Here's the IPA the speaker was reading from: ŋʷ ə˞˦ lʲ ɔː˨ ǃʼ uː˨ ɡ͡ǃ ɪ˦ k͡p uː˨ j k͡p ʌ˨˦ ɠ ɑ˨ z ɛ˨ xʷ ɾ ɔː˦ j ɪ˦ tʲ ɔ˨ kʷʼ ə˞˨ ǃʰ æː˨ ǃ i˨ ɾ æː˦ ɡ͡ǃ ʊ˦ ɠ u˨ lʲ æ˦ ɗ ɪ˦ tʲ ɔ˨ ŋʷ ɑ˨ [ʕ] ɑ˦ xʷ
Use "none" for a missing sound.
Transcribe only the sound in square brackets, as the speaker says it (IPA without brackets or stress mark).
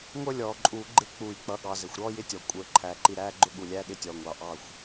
ʔ